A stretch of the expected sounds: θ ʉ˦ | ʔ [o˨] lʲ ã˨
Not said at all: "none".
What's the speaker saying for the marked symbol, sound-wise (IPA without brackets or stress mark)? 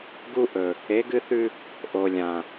o˨